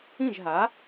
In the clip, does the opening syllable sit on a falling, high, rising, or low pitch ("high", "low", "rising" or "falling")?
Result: falling